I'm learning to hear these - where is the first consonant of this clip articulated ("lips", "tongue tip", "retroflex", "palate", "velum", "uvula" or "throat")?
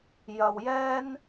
palate